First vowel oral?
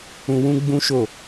no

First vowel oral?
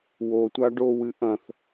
yes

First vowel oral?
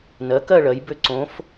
yes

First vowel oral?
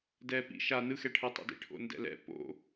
yes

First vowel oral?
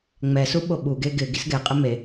yes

